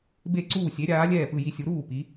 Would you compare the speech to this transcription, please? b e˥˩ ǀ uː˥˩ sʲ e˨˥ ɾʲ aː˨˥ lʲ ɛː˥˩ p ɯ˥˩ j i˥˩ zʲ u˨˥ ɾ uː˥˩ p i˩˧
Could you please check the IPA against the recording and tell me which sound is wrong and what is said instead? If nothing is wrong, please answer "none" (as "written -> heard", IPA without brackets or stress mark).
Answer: zʲ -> sʲ